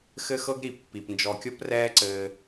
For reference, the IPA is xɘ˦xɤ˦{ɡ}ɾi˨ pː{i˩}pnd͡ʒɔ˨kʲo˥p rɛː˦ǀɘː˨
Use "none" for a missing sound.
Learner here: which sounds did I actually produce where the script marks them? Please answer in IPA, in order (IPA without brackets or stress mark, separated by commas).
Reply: ɡ, i˩